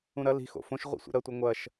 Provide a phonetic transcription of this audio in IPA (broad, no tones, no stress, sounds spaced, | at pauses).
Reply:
ũ ɾ ɐ l i̤ x o̰ f õ ʃ ʁʷ ḭ sʷ ḭ ɾ ɐ tʷ ɐ ŋʷ ɐ ʃ